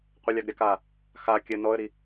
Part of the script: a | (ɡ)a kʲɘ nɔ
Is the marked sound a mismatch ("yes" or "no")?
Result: yes